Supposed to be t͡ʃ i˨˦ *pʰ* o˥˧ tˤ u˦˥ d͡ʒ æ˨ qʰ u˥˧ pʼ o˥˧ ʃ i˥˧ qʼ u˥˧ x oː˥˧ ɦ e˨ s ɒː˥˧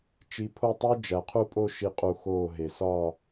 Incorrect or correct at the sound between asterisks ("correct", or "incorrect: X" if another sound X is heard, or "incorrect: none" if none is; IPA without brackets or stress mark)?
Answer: correct